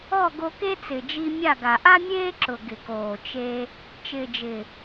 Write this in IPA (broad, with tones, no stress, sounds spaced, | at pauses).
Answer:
ɔ˦˨ ɡ o˧ k e˦ t͡s ɪ˨ d͡ʒ i˧ mʲ a˦˨ ɡ a˨ ʔ a˦ mʲ eː˦ ǁ ʊ˨ ɡ ɪ˨ k oː˨ t͡ʃ e˧ | t͡ʃ ɪː˨ d͡ʒ ɪ˨